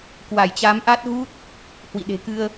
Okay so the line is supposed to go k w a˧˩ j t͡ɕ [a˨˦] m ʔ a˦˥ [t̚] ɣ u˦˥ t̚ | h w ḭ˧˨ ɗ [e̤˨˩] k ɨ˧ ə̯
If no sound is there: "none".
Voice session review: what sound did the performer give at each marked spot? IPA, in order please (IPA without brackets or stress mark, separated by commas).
a˨˦, t̚, e̤˨˩